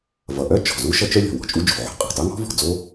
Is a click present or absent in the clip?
absent